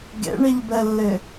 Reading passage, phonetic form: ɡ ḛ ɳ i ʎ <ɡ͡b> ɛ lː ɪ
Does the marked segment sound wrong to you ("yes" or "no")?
yes